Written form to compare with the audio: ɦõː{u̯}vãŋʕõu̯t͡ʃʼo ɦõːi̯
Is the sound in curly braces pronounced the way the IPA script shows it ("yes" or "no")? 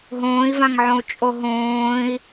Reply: no